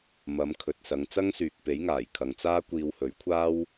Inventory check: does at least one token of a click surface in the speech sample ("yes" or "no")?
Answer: no